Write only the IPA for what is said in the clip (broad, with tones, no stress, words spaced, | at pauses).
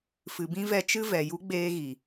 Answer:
fɨ˨bĩ˦vɛ˧ t͡ʃɨ˦vɛ˨ju˦ ɡ͡beː˦ɣi˨